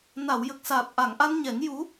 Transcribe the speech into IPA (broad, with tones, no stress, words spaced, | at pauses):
na˨˩˨wjə˨˩k̚saː˨˩p̚ ʔa˨˩˨ŋʔa˧nɲɛ˨˩˦ŋ ju˧˥